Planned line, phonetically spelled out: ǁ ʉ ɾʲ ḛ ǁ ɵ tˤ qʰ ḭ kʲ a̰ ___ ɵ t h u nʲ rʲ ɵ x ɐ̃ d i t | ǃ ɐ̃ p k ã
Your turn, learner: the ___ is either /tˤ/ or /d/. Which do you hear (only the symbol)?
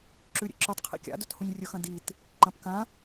d